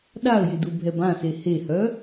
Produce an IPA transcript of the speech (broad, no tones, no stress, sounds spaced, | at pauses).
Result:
ɗ a ə̯ j ɪ d u bʱ ɛ b ã s e h e h œ